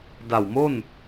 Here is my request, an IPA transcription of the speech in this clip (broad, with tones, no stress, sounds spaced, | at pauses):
d a˨˩ w m o˥˩ n